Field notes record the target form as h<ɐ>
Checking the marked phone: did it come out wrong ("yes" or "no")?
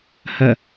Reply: no